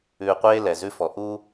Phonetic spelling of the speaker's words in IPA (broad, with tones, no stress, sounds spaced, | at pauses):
ʉː˨ qʷ eː˦ l ɛ˨ z ʉ˦ f ɔ˨ ʔ u˦